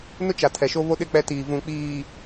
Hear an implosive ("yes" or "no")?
yes